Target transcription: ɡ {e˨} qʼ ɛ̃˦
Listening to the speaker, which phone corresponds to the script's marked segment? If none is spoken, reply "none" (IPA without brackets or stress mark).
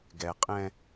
ɛ˨